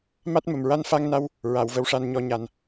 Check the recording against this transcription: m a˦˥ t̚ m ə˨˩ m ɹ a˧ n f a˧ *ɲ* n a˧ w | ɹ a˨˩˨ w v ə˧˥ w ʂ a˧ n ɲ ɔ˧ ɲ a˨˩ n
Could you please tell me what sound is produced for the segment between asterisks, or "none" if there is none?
ŋ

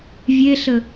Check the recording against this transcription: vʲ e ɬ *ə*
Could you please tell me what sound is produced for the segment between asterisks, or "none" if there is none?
ə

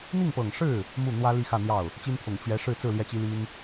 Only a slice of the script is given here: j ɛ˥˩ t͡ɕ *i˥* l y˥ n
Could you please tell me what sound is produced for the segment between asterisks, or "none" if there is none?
i˥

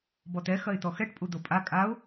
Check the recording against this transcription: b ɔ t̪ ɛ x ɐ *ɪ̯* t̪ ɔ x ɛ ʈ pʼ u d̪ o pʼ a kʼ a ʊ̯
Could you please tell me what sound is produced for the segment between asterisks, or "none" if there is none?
ɪ̯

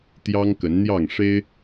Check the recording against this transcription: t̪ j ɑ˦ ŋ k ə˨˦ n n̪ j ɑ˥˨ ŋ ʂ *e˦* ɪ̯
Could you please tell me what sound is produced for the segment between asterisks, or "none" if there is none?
e˦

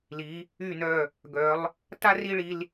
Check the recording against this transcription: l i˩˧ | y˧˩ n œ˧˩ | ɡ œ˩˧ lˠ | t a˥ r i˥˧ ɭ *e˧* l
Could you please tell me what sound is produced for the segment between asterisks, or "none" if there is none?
i˧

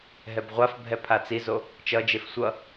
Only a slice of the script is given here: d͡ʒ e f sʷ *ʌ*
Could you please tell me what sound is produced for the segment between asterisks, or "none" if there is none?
ʌ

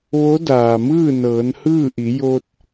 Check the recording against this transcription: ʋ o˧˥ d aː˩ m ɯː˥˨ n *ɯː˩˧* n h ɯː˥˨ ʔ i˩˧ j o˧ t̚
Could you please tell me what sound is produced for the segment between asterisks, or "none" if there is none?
ɤː˩˧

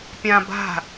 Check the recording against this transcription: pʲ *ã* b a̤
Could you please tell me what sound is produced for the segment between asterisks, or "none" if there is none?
ã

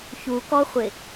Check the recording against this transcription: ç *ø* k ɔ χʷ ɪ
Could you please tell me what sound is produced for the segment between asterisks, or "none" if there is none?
u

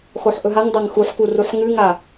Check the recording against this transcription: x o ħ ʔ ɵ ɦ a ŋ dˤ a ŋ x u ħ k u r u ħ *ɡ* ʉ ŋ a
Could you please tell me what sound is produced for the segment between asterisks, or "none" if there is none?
ŋ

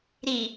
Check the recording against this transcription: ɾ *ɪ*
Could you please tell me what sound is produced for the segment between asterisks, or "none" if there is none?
i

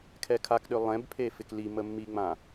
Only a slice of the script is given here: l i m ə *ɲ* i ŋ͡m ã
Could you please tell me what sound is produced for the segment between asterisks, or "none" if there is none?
mː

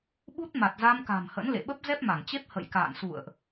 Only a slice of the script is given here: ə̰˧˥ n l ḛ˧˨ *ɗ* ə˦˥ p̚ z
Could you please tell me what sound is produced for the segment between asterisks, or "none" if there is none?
ɓ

